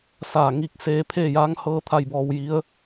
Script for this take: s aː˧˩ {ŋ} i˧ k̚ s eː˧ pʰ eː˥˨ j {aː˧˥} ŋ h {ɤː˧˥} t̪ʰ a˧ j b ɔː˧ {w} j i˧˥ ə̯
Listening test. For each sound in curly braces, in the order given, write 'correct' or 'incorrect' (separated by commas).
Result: correct, correct, correct, correct